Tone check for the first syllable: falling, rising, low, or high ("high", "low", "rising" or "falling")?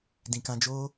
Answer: low